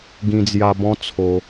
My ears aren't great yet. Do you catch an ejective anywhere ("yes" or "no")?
no